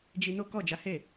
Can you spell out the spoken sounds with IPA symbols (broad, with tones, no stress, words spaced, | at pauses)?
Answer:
d͡ʒi˧no˦kɔ˦˨ d͡ʒa˨˦he˦˨